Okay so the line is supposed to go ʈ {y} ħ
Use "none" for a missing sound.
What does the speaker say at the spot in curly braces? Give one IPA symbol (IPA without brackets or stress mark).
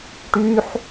y